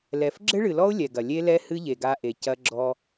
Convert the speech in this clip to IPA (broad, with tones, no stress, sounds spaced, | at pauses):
l ɛ˨ f ɡ͡ǁ ɘ˦ ɭ ɨ˨ l ɔ˦ ʊ̯ lʲ ɛ˨ ɡ ɐ˨ lʲ e˦ l ɛ˦ h ɨ˦ ʎ e˨ ɡ a˦ ʔ e˨ c ɐ˦ ɡ͡ǁ ɔ˦